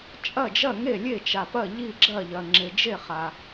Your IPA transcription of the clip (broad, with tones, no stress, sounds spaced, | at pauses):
t͡ʃʼ ɐ˦˨ d͡ʒ ɐ˦˨ ŋ e˦˨ lʲ e˦˨ t͡ʃ a˨ p ɐ˦˨ ʎ i˦˨ ɡ͡ǁ ɐ˦˨ ʎ ɐ˨ ŋ͡ǁ e˨ d͡ʒ e˦˨ χ a˨